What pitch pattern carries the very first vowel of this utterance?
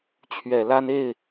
low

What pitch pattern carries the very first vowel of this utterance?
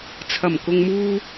low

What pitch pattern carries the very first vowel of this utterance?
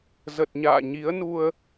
low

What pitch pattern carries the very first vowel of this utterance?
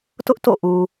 high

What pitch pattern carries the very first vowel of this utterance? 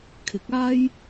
rising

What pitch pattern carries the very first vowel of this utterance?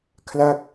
falling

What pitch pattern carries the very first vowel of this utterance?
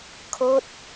falling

